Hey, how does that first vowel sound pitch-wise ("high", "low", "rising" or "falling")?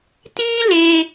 high